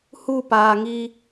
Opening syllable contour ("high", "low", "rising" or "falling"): falling